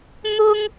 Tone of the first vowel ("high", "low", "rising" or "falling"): high